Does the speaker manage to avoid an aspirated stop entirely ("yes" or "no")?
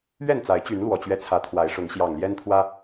no